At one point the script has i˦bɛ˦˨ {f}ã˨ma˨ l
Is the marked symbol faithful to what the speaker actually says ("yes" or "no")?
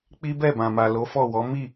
no